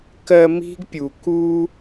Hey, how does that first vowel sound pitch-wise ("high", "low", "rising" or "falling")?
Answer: low